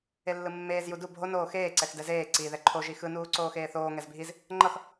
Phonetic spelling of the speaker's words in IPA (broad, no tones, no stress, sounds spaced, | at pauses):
e lː ɯ mː eː z j u d u bʱ o n oː x eː ǀ ɛ x d ɛ z eː ǀ i ð ɛ ǃʰ o ʒ i x ɯ n uː ǀ oː x eː θ oː ŋ ɛ z bʱ i z | ŋ͡ǃ ʌ x